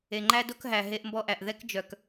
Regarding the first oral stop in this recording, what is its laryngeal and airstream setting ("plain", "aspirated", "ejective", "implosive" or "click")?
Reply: click